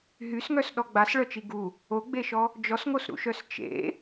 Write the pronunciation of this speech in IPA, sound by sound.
ɦ y s ŋ œ s ɗ ɔ ɡ͡b a s ɭ œ t͡ʃ i ɡ u | o ɡ͡b e ʃ ɔ | d͡ʒ ɔ s ŋ o s ɾ ṵ ʃ œ s t͡ʃ ḛ

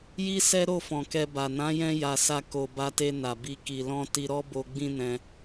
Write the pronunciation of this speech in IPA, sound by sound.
j i˦ s ɛ˦ ɾ o˦˨ f ɔ̃˨ k ɛ˧ b a˨ n ã˨˦ j ɛ̃˧ j a˨ s a˧ k o˨ b a˧ t e˧ n a˨ b i˧ k i˨ l ɔ̃˧ t i˧ ɾ ɔ˦ b o˧ ɡ͡b ĩ˦ n ɛ̃˧

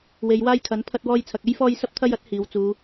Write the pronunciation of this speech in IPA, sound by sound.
w e˨˧ j w aː˥ j kʰ ɐ˨˥ n pʰ ɐ˧ t̚ w ɔː˧ j t͡sʰ ɐ˨ k̚ e˥ j f ɔː˧ j s ɐ˧ p̚ t̪ʰ ɐ˧ j ɐ˨˥ t̚ h iː˨˧ w t͡s uː˨˧

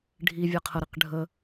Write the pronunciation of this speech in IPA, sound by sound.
ɖʱ i vʲ a qʰ ə ɾ i q ɖʱ ə

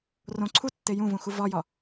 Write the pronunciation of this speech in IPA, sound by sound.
r õ ǀʰ u tː e j ũ v ũ x u v ɒ j ɒ

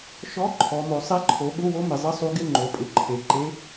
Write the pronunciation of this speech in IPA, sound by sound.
ʃ ɔ˧˥˧ ǃʰ ɔ˩˧ m o˩˧ sˤ e˧˥ ǃʰ o˩˧ ɠ ʊ˧˥˧ w o˧˥ m ɪ˩˧ zˤ ɪ˧˥˧ sˤ u˧˥ ɡ ɪ˧˥˧ ŋ͡ǃ o˩˧ pʼ ɪ˩˧ ǃʰ e˩˧ ǃ e˧˥

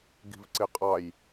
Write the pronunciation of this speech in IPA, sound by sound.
ɡ i̤ v ǀ ɪ qʼ ɑ j

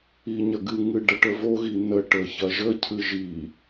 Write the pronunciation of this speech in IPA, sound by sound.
i ɲ ɐ ɡ ɨ ŋ ɨ ɖ ɐ ʈ ə v o ɣ i n ə ʈ ə ç ɐ ʒ ə cʰ ɨ ʒ i

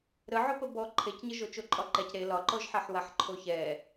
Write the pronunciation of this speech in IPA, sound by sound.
ɾ ə ʕ o p ə b ɔ ǃʰ e c ɲ ə ʒ o t͡ʃ o ǃʼ ɒ ǃ ɛ c ɾ e l ɒ ǃ ɔ ʒ ħ ɛ ħ w a ħ ǃʰ o ç ɛ

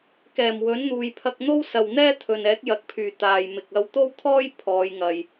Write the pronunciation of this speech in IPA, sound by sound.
k ɛː˨˩ m w ɵ˨˥ n n̪ uː˨ j pʰ ɐ˧ k̚ n̪ o˥ w s ɐ˨ w n̪ ɛː˥ t̪ʰ ɵ˨ n ɛː˨˥ k̚ j ɐ˨˥ k̚ pʰ yː˨˩ t̪ aː˨ j m ɪ˨ k̚ ɐ˧ w t̪ o˥ w t̪ʰ ɔː˥ j pʰ ɔː˨˧ j ŋ ɐ˨ j

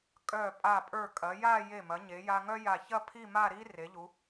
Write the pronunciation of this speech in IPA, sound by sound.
kʼ œ˧˩ pʼ a˧˩ pʼ ə˞˧˩ kʼ ɐ˩˧ j a˥˧ j e˧˩ m ɐ˩˧ ɲ e˩˧ j a˧ ŋ œ˥ j a˧˩ ç ɐ˥˧ pʰ i˥˧ m a˥˧ ɾ i˥ r e˩˧ ʎ u˩˧

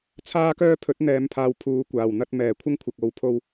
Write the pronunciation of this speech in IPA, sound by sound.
t͡sʰ aː˥ k œː˥ pʰ ɵ˨˥ t̚ n̪ ɛː˨ m pʰ aː˨ w pʰ uː˨˧ kʷ aː˨˩ w n̪ ɐ˥ t̚ m ɛː˨˩ kʷʰ ɪ˥ ŋ kʷʰ ɐ˨ k̚ o˨ w pʰ o˧ w

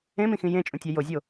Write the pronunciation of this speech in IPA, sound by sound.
ẽ m ĩ x ĩ j ẽ t͡ʃʼ ũ tʲ ɑ j o zʲ o

